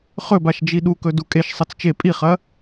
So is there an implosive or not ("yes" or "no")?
yes